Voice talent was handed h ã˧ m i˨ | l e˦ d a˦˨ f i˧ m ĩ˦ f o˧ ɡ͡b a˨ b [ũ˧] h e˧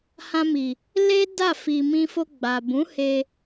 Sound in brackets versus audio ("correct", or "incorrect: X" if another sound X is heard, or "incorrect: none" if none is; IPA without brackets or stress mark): incorrect: ũ˨˦